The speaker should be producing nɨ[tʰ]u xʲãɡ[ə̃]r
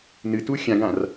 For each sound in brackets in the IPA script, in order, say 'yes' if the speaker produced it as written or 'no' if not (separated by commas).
no, no